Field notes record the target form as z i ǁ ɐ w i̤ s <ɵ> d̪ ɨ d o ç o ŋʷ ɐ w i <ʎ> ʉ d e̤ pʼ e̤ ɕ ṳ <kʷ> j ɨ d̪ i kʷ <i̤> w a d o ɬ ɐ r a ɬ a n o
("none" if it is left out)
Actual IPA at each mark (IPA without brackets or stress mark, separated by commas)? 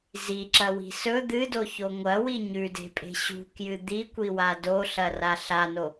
ɵ, ɲ, k, i